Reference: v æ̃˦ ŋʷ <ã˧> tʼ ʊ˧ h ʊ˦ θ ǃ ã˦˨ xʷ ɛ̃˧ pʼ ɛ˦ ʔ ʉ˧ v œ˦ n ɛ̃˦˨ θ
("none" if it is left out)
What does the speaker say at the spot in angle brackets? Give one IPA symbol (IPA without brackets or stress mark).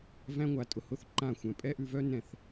a˧